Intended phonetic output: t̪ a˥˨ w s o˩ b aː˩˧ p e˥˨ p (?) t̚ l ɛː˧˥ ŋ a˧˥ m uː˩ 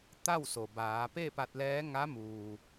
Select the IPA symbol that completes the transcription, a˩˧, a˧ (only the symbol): a˧